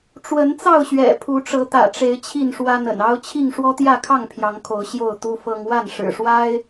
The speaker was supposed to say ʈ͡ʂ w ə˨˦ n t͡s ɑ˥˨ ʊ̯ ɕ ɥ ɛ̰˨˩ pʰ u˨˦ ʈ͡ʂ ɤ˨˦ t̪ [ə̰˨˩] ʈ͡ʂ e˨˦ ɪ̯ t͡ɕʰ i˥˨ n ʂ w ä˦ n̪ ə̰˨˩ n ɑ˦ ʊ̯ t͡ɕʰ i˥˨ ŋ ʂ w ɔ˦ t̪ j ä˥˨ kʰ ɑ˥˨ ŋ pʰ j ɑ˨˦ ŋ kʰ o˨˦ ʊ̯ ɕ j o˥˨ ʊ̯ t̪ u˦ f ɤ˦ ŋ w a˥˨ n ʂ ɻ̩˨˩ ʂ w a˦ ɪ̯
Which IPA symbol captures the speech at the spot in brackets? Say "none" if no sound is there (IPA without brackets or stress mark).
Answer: ä̰˨˩